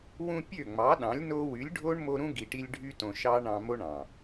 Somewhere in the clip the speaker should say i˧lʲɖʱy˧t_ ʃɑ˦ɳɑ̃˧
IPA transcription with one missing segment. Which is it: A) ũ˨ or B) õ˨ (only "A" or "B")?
B